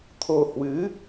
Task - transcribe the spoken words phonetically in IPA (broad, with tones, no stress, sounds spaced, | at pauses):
t̪ʰ o˧ h w ɨ˨˦